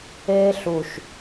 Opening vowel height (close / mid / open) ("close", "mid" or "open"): mid